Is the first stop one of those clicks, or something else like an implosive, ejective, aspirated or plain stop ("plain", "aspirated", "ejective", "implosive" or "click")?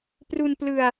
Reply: plain